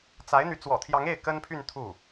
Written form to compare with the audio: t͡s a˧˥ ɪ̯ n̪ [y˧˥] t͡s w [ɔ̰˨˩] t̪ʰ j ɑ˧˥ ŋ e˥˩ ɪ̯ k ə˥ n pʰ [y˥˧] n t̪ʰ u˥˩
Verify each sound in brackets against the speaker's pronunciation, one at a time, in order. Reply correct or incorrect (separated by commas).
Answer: correct, correct, correct